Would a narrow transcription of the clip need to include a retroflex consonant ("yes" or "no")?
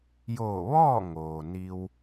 no